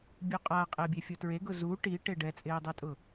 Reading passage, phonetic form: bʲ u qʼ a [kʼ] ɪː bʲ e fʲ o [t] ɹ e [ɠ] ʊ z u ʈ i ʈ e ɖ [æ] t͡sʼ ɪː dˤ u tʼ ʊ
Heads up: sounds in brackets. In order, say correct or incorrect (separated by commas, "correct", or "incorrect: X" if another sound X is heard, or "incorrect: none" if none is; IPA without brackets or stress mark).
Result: incorrect: qʼ, correct, incorrect: ɡ, incorrect: ɛ